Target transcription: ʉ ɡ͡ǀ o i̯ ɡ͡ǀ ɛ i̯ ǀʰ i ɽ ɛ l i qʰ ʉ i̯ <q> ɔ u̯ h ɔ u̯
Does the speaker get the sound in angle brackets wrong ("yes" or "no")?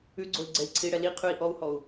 yes